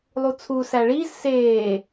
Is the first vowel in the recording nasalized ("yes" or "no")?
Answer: no